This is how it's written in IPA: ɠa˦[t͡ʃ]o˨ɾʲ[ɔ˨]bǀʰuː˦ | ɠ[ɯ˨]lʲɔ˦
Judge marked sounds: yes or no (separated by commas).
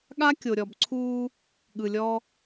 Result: no, yes, yes